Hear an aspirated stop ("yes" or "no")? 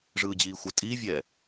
no